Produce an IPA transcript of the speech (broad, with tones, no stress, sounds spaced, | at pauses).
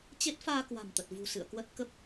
t͡ɕ e˦˥ t̚ f aː˧ k w a̤˨˩ m t̪ ə˨˩ t̚ v ṳ˨˩ s ɨ̰˧˨ ə̯ k w ə˦˥ t̚ k ə˦˥ p̚